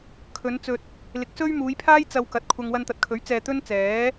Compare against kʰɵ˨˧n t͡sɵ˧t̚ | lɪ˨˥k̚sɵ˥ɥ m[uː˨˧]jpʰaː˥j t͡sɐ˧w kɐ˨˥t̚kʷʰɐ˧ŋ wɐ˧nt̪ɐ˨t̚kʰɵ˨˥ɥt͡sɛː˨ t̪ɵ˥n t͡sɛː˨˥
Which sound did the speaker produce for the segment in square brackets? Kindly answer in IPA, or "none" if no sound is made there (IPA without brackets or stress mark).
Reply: uː˨˧